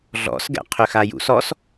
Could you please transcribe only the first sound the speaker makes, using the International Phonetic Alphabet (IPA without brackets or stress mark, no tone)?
ɮ